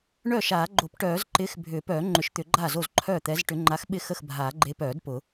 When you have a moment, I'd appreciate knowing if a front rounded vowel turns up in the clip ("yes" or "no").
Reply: yes